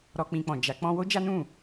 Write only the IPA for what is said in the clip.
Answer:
ɾɔ˦k͡pĩ˧k͡pɔ̃˨d͡ʒa˨˦ k͡pɔ̃˦ wo˦d͡ʒa˦nũ˦˨

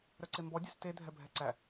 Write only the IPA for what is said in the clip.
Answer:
ɾœǀembɔ dʲœste dʱɛbʱɛǀæ

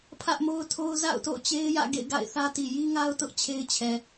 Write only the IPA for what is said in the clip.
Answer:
pʰä˦ʔmo˦ʊ̯tʰo˦ʊ̯ za̰˦˨ʊ̯to̰˦˨ʊ̯t͡ɕe˦ɪ̯ jä̰˦˨ ɡḛ˦˨ɪ̯ ɡa̰˦˨ɪ̯θä˦ti˨ ji˦ŋa˦ʊ̯ tʊ˦ʔt͡ɕʰe˦ɪ̯t͡ɕʰɛ˨

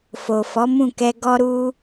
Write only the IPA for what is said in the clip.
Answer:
fo˨fɔ˨˦mũ˦˨kɛ˧ ɡɔ˦ɾu˦

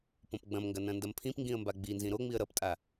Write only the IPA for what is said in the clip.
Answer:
põpɡ͡bɐ̃mŋɡɐ nɐ̃ndɐmpʰĩpŋɡĩə̯ mbaɡ͡binzĩ ɾoŋ͡miə̯ ɾʌptʼa

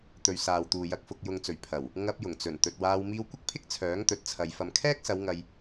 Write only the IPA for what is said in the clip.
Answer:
t̪ɵ˨ɥ saː˨wt̪uː˨ jɐ˨k̚fʊ˨k̚jʊ˨ŋt͡sɵ˨˩ɥ pʰɐ˨˩w | ŋɐ˧p̚jʊ˨˩ŋt͡sɵ˨˩n t̪ɵ˨t̚waː˧w miː˧wkʷɪ˥k̚pʰɪ˥k̚ t͡sʰœː˨˥ŋt̪ɵ˨˥t̚t͡sʰɐ˨j fɐ˨mkʰɛː˥k̚sɐ˨˧w ŋɐ˧j

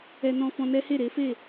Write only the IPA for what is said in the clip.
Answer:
ɛ˦ nɔ̃˦ fɔ̃˧nɛ˦he˦˨ ɾe˨˦fe˦˨

